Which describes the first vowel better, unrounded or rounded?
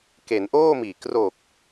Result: unrounded